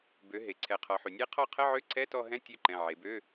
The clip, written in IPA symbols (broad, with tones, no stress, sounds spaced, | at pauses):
b ø˩˧ ɦ e˩ ǀʰ ɛ˩˧ qʰ ɔ˩˧ ħ y˩ nʲ e˦˥ qʰ ɔ˦˨ qʰ ə˧˥˧ ʕ ø˧˥˧ ǀʰ ɛ˧˥˧ t ɔ˦˨ ɦ ɛ̃˧˥˧ tʲ ø˦˨ ǃ ɛ̃˩˧˩ ʕ e˩˧ b ø˧˥˧